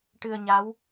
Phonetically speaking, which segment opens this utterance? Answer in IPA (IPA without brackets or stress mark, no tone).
ʈ